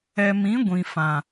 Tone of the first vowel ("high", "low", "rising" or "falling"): low